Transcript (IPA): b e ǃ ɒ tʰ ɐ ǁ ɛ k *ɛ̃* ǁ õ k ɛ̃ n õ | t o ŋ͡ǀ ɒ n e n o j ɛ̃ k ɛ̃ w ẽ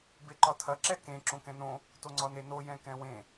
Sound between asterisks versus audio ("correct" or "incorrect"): incorrect